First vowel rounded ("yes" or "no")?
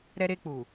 no